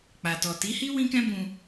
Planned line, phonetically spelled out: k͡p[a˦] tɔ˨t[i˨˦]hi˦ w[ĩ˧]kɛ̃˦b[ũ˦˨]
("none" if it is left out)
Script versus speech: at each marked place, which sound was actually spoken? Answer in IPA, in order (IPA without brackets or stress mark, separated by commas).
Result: a˨, i˨˦, ĩ˦, ũ˧